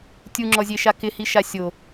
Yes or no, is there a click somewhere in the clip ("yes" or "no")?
yes